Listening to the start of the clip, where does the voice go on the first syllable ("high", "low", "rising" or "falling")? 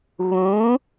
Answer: rising